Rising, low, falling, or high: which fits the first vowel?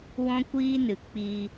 high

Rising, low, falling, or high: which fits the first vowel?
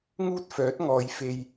high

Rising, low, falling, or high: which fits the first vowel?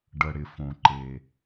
low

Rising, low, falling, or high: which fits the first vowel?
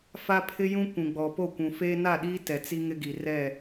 high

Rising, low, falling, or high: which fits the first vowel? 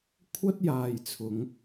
high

